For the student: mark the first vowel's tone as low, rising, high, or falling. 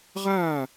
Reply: falling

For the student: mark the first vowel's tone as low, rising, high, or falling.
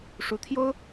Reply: rising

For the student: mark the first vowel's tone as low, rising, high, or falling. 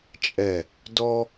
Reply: low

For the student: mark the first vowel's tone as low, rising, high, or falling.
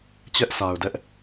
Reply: high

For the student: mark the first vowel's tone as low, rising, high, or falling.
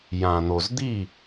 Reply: low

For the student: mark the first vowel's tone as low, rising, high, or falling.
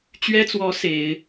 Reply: high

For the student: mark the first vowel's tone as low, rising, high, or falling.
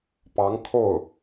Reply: rising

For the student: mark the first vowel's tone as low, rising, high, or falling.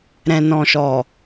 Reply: low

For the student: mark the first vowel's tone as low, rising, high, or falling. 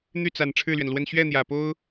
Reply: falling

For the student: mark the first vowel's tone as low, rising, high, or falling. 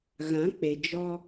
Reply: rising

